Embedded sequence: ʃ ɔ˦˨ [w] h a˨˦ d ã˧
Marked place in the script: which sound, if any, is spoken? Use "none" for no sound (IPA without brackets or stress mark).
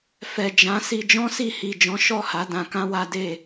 none